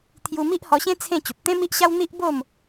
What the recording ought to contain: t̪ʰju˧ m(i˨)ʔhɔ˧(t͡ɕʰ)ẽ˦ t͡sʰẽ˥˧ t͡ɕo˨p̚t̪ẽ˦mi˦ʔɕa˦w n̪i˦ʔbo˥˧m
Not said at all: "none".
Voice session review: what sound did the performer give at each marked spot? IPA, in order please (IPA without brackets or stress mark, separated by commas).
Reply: i˦, ɕ